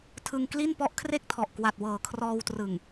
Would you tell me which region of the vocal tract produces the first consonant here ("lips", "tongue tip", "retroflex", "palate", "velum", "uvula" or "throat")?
tongue tip